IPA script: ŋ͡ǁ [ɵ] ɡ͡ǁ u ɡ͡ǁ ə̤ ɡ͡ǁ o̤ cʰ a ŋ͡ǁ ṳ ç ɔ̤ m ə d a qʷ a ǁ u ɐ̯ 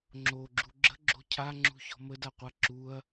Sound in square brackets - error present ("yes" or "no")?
yes